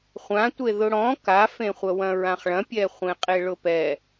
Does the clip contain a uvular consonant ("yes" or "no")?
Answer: yes